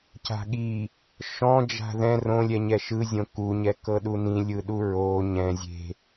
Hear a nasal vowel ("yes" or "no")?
yes